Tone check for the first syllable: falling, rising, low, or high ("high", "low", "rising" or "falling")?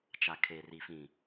low